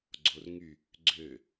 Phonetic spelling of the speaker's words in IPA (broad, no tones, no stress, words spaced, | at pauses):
ɡ͡ǀorŋy | ɡ͡ǀø